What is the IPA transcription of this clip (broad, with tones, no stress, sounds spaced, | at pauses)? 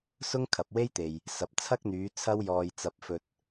s ʊ˥ ŋ kʰ ɐ˨ p̚ w e˥ j t̪ e˨ j | s ɐ˨˥ p̚ t͡sʰ ɐ˥ k̚ n̪ yː˨˧ t͡sʰ ɐ˥ w j ɔː˧ j t͡s ɐ˧ p̚ f ɵ˧ t̚